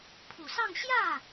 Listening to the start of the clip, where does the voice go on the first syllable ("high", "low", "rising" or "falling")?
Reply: low